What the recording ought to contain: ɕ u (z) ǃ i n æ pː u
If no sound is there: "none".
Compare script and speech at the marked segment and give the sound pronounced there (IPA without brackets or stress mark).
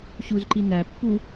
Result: z